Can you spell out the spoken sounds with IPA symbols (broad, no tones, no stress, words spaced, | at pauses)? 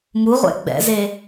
muʁʷɛ̰ ɡ͡bɛ̰ze